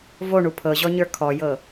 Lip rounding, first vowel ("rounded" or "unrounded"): rounded